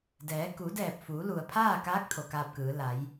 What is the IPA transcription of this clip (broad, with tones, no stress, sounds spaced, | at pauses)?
d ɛː˩˧ k u˩˧ d ɛː˧˩ p̚ f uː˩˧ l u˩ ə̯ pʰ aː˥˨ k aː˧˥ k̚ t̪ʰ o˩ k aː˧ p̚ k ɯː˩˧ l a˩˧ j